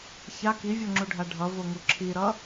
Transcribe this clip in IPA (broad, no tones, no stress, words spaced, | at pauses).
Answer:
ça kivʲoŋ͡ǁuɖʱa ɖʱʌvoŋu ǁʰiɾʌ